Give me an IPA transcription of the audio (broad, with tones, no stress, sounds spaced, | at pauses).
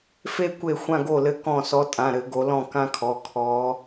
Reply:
f e˥˧ kʷ e˥˩ xʷ ã˥˧ ɡ o˥˩ l ɘ˥˩ k ɔ̃˥˩ s ɔ˨˦ tʼ ã˩˧˩ ɾ ɘ˧˩˧ ɡ o˨˦ l ɔ̃˥˩ k ã˥˧ kʰ ɔ˩˧˩ kʰ ɔ˨˦